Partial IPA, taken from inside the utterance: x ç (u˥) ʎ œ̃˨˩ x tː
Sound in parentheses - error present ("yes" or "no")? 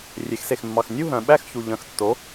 yes